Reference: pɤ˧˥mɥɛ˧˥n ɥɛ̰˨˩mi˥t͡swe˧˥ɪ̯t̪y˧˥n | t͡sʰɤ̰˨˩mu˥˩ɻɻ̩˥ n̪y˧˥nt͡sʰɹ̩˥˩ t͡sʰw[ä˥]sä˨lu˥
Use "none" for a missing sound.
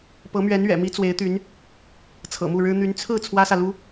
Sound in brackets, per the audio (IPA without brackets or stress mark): ä˥